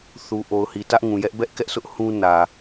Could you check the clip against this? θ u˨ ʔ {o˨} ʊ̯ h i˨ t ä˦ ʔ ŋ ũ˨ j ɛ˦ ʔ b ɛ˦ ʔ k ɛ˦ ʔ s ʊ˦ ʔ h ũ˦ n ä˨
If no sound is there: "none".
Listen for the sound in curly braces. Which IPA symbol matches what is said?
o˨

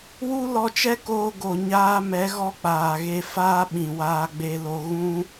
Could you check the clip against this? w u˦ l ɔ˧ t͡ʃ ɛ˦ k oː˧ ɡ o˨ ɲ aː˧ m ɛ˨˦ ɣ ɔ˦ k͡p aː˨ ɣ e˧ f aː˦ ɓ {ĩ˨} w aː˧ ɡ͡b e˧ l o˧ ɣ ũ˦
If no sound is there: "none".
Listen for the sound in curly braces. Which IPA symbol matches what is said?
ĩ˨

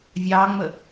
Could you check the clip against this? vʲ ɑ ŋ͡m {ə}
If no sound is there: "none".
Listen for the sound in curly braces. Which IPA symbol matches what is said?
ə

